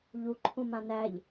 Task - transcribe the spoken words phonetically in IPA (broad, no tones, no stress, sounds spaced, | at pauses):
ʎ u ǃʰ ũ m ã n æ ʎ